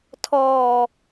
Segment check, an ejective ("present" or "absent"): absent